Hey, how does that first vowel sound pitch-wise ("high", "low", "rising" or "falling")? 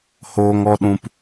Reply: high